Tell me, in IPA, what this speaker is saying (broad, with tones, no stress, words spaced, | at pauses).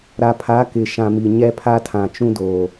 ɾa˨pʰa˨˦kɪ˨ ʃã˨mi˨ɲɛ˦pʰa˦ tʰã˨t͡ʃũ˦doː˨